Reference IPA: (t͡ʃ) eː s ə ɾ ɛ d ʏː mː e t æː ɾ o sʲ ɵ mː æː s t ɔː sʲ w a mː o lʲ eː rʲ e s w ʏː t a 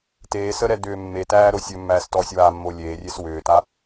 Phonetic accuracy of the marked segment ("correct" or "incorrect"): incorrect